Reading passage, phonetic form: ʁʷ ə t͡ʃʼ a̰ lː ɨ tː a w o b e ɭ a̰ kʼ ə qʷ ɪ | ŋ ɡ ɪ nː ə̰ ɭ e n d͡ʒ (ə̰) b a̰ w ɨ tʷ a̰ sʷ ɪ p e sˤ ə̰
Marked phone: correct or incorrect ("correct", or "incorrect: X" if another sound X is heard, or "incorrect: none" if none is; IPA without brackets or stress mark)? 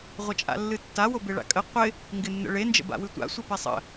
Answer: correct